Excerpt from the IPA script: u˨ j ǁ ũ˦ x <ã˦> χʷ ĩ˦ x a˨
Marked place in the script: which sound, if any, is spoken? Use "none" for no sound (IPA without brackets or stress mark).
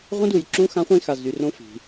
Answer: ã˦